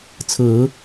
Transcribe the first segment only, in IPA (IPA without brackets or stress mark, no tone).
t͡sʰ